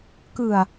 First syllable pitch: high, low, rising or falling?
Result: low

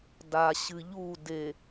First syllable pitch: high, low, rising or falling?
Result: low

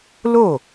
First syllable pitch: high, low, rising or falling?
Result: falling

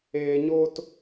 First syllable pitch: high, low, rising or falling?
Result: low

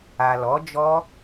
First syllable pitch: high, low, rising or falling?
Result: low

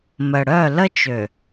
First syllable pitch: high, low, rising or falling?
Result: low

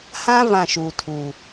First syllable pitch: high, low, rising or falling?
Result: high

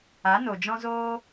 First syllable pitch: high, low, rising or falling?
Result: rising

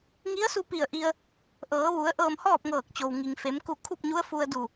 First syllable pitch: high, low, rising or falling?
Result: rising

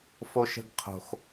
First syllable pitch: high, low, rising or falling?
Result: high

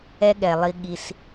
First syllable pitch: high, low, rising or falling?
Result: high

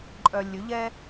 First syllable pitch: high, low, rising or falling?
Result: low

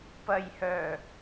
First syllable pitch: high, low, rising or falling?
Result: low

